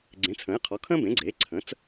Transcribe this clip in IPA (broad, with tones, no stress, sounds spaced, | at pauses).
ɡ͡ǀ ẽ˩˥ t͡sʰ ə̃ː˩˥ j qʰ ɔ˩˥ kʰ ə̃ː˥ b ẽ˩˥ ɡ͡ǀ eː˩˥ ǀʰ ə̃˩˥ t͡s